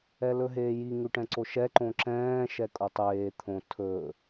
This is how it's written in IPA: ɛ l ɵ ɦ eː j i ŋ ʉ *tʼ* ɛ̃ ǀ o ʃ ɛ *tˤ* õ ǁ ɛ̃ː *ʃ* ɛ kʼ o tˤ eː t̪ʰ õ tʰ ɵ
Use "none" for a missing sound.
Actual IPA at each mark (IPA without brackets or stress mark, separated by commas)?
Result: ʈ, ǃ, ʃ